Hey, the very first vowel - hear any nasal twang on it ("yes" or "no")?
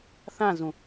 yes